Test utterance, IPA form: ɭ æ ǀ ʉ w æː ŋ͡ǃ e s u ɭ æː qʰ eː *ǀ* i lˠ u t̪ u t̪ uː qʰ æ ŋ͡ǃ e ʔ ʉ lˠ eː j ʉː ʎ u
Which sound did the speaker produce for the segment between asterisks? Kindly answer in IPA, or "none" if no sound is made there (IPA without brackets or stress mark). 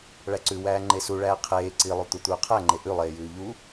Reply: ǀ